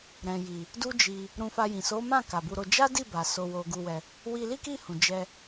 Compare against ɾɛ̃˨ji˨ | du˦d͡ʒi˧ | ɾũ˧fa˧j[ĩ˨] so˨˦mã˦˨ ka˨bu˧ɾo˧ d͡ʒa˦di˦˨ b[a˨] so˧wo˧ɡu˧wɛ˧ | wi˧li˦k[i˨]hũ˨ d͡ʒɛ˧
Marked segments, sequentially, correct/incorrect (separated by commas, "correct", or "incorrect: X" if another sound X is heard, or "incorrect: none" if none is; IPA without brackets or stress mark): correct, correct, incorrect: i˦˨